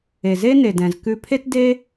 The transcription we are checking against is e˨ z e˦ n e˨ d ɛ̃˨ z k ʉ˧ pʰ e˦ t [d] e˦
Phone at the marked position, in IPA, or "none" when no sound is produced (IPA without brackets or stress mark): d